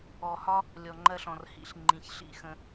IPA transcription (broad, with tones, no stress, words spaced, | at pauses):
ɔ˨hɒ˦ | lʲɔ˨ŋ͡ǃɜ˧ɬɔ̃˨rhḭ˨˦ɬ ŋ͡ǃĩ˨çɬḭ˦˨xə̃˧